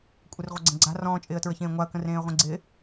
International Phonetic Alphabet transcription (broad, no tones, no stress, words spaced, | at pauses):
kʷʼɪrʁʷəɡ͡ǀə̃ɡ͡ǀa̤ rɔ̃ːt͡ʃʼɪːə̯tɹəçẽː ŋʷaə̯kə̃rẽːə̯ʁʷẽ ɡ͡ǀɪ